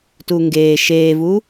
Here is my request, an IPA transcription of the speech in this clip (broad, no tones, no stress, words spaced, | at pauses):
tuŋɡeː ʃeːvu